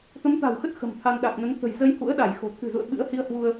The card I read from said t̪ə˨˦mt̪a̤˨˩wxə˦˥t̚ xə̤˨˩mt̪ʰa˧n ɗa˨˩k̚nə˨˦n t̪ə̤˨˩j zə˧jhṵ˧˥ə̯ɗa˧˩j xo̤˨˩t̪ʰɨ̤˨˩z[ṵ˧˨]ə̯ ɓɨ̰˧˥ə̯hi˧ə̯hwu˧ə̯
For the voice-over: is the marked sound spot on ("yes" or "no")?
yes